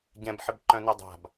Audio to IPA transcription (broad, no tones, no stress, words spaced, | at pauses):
ɟɛ̃bħɪbǃœ̃ nɛdˤa̤b